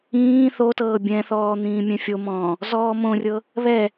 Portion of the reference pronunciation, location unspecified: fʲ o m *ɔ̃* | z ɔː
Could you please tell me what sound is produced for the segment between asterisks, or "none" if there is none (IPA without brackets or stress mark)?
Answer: ɔ̃ː